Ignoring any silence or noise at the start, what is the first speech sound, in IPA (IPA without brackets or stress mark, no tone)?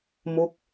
m